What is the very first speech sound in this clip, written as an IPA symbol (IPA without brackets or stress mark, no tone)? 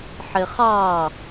ħ